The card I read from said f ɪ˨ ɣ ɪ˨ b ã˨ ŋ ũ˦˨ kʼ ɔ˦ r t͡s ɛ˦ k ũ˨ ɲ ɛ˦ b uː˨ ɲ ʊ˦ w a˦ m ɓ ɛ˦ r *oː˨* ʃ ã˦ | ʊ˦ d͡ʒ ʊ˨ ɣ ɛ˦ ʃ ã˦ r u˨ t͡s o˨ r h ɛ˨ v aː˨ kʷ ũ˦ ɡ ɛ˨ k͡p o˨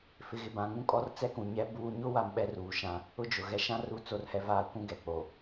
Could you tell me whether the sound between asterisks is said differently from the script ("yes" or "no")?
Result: yes